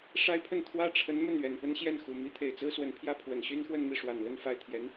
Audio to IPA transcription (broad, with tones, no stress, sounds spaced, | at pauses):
ʂ a˥ ɪ̯ pʰ ə˥˩ n t̪ʰ w ä˥ ʈ͡ʂʰ ə˧˥ n m ə˥˩ n ɥ ɛ˨˩ n p ə˥ n ɕ j ɛ˥˩ n x u˨˩ m i˥ t̪ʰ e˨˩ ɪ̯ t͡s ɹ̩˥ s w ə˧˥ n pʰ j ä˥˩ pʰ w ə˨˩ n ɕ y˥ n x w ə˥˧ n m i˥˩ ʂ w a˨˩ n l ə˥˧ n f a˥˩ ɪ̯ t̪ʰ j ɛ˧˥ n